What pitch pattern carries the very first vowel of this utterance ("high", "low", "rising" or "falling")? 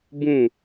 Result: falling